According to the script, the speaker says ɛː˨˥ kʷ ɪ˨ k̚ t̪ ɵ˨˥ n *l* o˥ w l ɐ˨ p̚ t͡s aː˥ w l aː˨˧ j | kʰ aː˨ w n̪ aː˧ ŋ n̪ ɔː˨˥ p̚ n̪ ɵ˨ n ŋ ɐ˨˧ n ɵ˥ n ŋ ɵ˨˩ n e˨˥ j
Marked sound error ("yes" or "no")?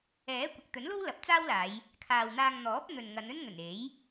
no